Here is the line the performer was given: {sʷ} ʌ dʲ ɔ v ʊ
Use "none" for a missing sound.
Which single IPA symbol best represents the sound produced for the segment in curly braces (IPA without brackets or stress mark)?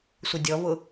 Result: sʷ